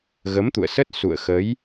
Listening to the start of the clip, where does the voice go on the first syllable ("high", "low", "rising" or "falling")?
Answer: rising